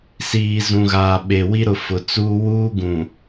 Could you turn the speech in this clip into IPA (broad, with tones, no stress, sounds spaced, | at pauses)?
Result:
s iː˨ z ũ˨ ɣ aː˨ ɓ e˨ w i˦ ɾ ʊ˨ f ʊ˨ t͡s uː˦ w uː˦ ɡ ũ˨